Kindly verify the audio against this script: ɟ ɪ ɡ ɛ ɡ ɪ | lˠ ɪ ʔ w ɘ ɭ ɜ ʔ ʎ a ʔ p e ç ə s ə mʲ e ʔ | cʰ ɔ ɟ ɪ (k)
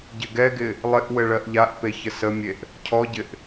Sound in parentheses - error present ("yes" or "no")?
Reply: yes